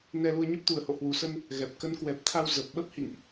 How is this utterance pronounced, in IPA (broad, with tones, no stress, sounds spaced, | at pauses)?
n ɛ˧ l u˧ ə̯ ɲ ə˦˥ p̚ t̪ u˨˩ ə̯ h o̰˧˨ h w u˨˩ s ə˧ n | ɣ ɛ˨˩ p̚ k ə˨˦ n k w ɛ˨˩ p̚ t̪ʰ a˧ w z ə˨˩ p̚ ɓ ə˦˥ p̚ h ḭ˧˨ ŋ ʔ